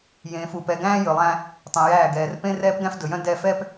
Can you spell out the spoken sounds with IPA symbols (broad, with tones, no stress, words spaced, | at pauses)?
jẽː˨fu˨ pɛ˨ɡæ̃ː˦ jɵ˨lˠæ̃˦ | tˤɛ̃˨jæː˦˨ɡɛː˨r pẽ˦rɛː˦pɡæ̃˦f dɵ˨jœ̃˦ dɛ˦fɛ˦p